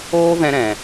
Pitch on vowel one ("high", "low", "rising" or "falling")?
high